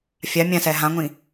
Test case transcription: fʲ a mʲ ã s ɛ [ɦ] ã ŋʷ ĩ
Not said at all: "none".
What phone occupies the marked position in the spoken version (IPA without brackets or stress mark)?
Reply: ɦ